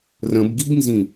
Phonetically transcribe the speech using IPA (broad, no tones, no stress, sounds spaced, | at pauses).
r ə̃ b ɡ i b n z ĩ